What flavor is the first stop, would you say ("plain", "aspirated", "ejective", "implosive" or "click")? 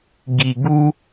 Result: plain